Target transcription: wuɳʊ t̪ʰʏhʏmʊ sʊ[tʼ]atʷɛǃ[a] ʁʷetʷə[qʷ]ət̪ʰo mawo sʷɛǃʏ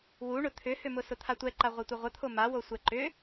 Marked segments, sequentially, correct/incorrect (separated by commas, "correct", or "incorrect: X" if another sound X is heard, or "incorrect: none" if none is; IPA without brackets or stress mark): incorrect: t̪ʰ, correct, incorrect: ʁʷ